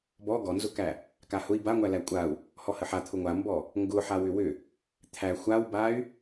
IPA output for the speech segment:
bɔ ɡɔnzʊkæ | kahʊi̯ baŋʷælæ kʷʼau̯ | hɔhəħa t̪ʰʊŋʷambɔ | ŋɡʊ ħawʏwʏ | t̪ʰæ xʷawbay̯

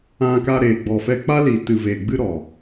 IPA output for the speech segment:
ã˧ka˧ ɾeː˨ɡ͡bɔ˨fɛ˧ k͡pa˦li˨tɨ˨ veː˨ɡ͡bɨ˦ɾɔ˨

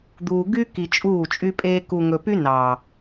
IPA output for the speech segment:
d̪uː˨ɡy˦ki˨ t͡ʃʼuː˦˨t͡ʃʼy˦pʼeː˦ ku˨ŋɵ˨py˦ nɑ˨

